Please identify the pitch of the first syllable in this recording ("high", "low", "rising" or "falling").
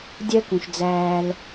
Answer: high